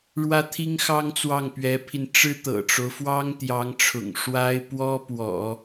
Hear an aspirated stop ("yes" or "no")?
yes